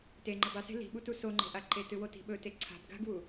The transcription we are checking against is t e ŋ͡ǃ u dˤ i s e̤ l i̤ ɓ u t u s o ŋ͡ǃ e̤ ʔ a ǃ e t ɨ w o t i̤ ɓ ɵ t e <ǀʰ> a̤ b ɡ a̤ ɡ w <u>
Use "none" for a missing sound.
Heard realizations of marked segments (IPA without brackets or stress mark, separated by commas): ǀʰ, u